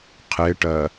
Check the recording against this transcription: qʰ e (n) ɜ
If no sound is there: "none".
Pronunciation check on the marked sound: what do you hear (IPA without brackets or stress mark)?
ʈ